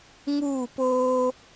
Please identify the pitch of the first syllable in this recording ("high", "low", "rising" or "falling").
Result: falling